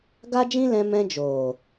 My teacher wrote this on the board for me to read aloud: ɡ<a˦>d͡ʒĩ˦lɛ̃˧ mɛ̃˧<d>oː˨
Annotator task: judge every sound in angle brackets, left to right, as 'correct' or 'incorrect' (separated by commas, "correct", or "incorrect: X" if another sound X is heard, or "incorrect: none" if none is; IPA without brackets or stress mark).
correct, incorrect: d͡ʒ